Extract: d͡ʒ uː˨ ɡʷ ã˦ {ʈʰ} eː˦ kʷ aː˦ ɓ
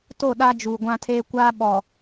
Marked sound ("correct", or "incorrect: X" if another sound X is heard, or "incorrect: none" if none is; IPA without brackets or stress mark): incorrect: tʰ